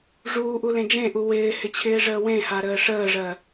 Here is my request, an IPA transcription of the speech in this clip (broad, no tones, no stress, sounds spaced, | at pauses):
ʐ uː ʔ u l ẽ d͡ʒ ẽ ʔ u w ɪː h ɪ t͡ɕʰ ɪː ʐ əː w ẽ h a ɾ əː ʂ əː ʐ ɜ